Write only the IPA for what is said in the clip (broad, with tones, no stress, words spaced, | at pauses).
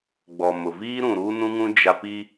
ɡ͡bɔ˨mʊ˨viː˦ ɾũ˨ ɾuː˦nũ˦ŋũ˦ d͡ʒa˦ pi˦